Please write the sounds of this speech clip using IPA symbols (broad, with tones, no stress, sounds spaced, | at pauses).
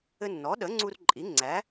ɘ˧ nː ɔ˩˥ ɗ ə˩˥ ŋ͡ǀ u˧ r ǃʼ i˩˥ ŋ͡ǀ æ˩˥